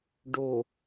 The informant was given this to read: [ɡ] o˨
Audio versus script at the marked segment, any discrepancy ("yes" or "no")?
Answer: yes